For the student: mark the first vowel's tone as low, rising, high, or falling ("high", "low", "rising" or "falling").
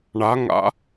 rising